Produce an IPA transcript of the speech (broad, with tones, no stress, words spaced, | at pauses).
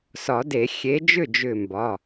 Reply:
sɒ˨˩˦de˨˩˦ xʲe˨˦d͡ʒʏ˥˩d͡ʒʏ˧˩ mbɒ˩˧˩